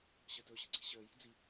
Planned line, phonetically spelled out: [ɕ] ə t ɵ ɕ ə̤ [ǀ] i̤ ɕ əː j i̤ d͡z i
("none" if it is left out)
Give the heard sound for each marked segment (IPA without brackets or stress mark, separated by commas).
ɕ, ǀ